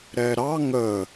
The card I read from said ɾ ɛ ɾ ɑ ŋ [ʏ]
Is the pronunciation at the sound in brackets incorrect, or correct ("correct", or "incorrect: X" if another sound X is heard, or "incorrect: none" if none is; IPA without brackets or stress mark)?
incorrect: ə